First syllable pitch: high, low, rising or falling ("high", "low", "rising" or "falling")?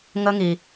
high